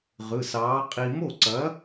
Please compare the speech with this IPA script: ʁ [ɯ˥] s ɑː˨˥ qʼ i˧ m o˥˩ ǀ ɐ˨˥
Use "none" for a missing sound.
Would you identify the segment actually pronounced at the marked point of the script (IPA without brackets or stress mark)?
ɯ˩˧˩